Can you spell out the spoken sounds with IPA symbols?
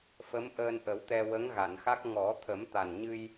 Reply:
f ə˧˥ m ʔ əː˧ n ʔ ə˨˩˦ w t̪ ɛ˧ w ə˧˥ ŋ ɣ a˨˩˨ n x a˦˥ k̚ ŋ ɔ˨˩˦ t̪ʰ ə˨˩˦ m t̪ a˨˩ n ɲ ɨ˧ j

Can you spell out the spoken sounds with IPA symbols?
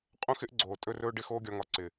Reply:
qʼ õ˦ x ɪ˦ ʔ ɡ͡ǀ oː˨ tʼ ɵ˧ r ɵː˧ ɖ ɪ˦ x oː˦ ɡʲ ɒ˧ ŋ ɒ˧ ǀ ɪ˨

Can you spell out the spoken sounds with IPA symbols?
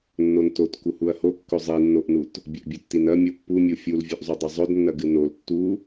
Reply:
nː o n t o t k u h u ɐ̯ h o kː ɵ zˤ i nː o ʔ n u t | bʲ ɐ ʔ bʲ ɵ tː i n ɐ mʲ o pː u mʲ u fʲ u l vʲ ɵ ʔ zˤ u dˤ ɐ zˤ ɵ d nː ɐ ɡ ɨ n o l tː u

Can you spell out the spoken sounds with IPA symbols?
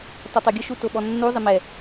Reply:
t ɔ tˤ o ɡʲ ʊ ʃ u t o ɓ ɔ nː u zˤ ɪ m ɛ

